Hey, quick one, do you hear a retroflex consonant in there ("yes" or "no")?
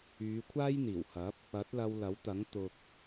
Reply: no